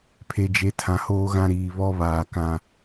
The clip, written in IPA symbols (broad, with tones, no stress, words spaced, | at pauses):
pʰe˨d͡ʒe˨ tʰã˨hoː˦ɣã˦ ɾiː˨βɔ˦βaː˨ kã˦